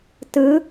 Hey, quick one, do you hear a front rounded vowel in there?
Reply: no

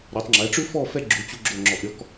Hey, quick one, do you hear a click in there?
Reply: yes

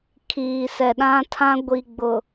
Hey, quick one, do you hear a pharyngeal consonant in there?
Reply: no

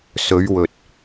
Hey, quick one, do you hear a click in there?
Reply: no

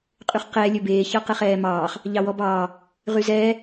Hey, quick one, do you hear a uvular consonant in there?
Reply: yes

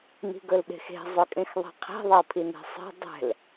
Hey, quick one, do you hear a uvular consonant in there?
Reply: yes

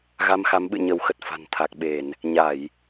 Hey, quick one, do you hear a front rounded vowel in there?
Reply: no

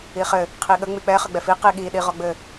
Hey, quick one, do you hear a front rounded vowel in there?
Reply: no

